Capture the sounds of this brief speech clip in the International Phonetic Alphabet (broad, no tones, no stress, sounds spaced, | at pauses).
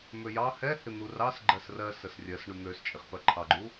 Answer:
m ø j ɑ h ɛ h ɪ n̪ u r ɑ s ɡ͡ǃ ɜ s r ɜ s ə s rʲ ɜ s ɳ u n̪ ø s t͡ʃʼ ɪ χ p ɜ ǃʰ ɑ ɡ͡ǃ u